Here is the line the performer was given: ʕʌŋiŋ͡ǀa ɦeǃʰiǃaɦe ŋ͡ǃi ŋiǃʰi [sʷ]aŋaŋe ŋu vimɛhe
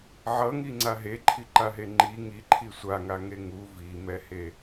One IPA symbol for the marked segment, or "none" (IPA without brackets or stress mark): sʷ